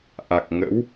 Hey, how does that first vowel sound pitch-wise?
low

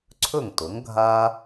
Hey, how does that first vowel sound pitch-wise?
falling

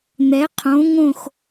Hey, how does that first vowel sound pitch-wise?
rising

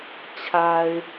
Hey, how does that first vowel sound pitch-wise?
low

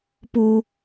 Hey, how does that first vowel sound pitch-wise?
low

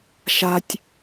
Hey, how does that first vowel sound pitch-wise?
high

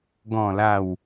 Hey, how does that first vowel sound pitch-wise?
falling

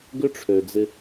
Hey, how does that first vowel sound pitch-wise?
high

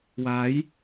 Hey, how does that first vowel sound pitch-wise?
rising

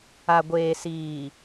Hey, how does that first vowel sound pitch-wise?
low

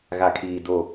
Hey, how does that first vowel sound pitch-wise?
low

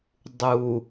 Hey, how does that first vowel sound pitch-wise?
low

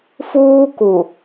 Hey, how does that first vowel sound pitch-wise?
high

